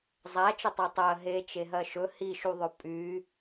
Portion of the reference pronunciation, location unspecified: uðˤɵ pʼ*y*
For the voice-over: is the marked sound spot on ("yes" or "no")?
yes